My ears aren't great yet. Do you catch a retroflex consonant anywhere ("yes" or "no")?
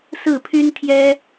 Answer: no